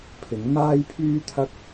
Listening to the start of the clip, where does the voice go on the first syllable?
rising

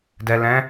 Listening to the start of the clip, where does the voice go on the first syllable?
low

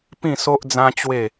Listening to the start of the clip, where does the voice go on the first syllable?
falling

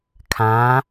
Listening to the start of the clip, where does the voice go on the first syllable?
rising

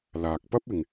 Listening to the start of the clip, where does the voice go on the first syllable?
low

